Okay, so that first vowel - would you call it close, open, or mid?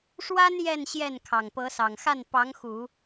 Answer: open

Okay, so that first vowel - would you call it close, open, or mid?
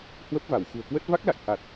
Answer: mid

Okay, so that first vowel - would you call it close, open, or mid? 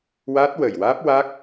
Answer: open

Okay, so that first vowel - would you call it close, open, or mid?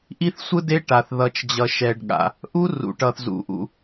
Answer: close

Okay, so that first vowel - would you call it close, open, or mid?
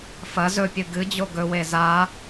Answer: open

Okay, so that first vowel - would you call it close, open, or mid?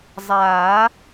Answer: open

